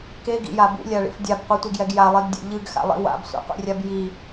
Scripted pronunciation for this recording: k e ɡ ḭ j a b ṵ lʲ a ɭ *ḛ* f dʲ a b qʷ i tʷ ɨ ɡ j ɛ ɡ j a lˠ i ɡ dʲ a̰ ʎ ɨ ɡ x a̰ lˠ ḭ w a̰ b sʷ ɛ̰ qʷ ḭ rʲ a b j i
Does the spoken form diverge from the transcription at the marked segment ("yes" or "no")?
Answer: yes